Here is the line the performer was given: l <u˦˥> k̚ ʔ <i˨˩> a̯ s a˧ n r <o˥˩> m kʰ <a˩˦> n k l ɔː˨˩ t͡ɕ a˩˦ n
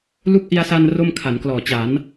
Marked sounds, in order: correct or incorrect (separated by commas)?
correct, incorrect, correct, correct